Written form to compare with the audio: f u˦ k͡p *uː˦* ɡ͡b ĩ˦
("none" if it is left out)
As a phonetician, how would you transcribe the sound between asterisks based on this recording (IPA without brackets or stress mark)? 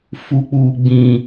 uː˦